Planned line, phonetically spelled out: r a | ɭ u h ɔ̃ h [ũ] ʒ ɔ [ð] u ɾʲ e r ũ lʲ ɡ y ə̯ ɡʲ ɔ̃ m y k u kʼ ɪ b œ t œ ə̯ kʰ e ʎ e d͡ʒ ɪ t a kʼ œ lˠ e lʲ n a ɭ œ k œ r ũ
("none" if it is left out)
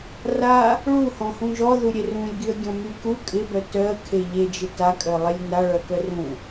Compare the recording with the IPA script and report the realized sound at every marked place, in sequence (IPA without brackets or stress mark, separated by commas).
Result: ũ, ð